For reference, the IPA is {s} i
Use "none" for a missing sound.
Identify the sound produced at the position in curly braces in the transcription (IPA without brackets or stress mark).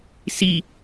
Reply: s